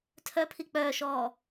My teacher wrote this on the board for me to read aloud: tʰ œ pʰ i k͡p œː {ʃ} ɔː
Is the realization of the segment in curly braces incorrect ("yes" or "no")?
no